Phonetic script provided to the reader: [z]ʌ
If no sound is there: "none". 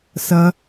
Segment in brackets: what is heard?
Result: s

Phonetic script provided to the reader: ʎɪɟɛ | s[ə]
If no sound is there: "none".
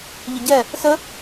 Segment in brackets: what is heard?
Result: ə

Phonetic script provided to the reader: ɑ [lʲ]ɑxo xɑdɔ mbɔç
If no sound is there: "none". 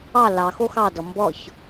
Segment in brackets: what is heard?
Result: l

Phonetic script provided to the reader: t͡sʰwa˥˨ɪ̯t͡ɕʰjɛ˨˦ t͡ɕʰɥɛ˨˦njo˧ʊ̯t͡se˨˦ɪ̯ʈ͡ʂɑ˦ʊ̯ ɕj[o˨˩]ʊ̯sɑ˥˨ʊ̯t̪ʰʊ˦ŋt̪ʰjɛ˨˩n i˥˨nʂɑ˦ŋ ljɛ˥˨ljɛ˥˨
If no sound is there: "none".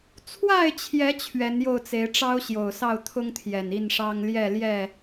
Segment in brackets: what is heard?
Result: o˨˩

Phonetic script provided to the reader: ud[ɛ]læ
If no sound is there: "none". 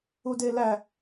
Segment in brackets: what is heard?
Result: e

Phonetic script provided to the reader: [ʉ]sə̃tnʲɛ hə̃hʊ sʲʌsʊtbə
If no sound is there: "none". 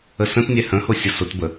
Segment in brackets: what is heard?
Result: ə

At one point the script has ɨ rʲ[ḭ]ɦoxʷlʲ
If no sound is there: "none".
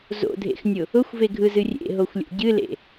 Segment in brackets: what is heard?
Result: ḛ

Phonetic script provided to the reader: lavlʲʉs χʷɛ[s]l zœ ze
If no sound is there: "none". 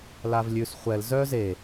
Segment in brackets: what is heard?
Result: none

